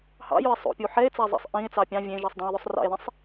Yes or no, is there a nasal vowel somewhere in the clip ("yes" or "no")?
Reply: yes